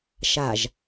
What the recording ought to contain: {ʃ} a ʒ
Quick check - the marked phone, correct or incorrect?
correct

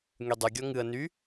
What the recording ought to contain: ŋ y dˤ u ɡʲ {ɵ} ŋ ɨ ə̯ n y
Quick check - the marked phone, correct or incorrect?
incorrect: ɔ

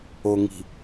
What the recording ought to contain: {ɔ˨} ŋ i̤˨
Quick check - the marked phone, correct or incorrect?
incorrect: o˨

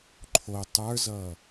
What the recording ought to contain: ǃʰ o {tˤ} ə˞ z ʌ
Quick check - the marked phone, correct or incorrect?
correct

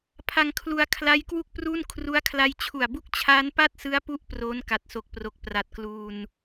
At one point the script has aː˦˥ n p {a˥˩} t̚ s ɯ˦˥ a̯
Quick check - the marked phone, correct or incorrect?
correct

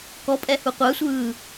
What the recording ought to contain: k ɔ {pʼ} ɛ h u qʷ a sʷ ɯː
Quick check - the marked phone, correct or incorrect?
correct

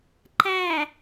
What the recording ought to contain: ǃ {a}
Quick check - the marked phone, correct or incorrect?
incorrect: æ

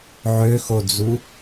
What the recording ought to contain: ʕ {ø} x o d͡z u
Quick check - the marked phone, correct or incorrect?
correct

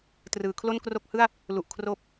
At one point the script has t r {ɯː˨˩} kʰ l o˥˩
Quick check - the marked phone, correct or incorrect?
incorrect: ɯː˩˦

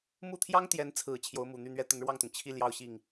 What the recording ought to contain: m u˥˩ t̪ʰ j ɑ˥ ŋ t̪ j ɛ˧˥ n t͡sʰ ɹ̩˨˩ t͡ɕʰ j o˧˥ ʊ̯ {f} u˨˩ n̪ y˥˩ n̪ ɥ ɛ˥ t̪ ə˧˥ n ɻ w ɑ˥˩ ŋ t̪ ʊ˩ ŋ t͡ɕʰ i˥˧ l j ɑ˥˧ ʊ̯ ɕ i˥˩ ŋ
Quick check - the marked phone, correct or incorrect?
incorrect: m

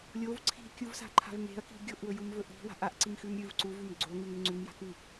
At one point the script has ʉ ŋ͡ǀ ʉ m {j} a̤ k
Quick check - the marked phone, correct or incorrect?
correct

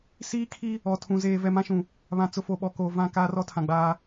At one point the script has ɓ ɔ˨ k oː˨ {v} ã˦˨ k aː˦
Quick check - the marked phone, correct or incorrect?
correct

